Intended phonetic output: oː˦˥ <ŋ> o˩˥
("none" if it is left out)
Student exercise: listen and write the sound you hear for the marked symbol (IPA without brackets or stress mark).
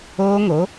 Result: ŋ